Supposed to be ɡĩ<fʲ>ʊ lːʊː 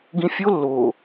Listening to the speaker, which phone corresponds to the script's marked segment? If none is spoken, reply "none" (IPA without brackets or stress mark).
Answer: fʲ